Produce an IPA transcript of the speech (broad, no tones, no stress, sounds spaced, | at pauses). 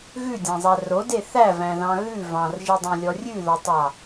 ɣ ʉ dʲ æ̃ zˤ æ r o d e θ æ v æ̃ ð ɑ̃ ɣ ʉ v ɑ̃ r ʒ i dˤ ĩ lʲ ɔ rʲ ʉ ð ɔ tˤ ɑ